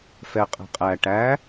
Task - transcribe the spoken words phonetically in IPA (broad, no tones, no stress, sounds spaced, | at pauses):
f ɛ qʼ ɛ̤ qʼ æ ʈ æ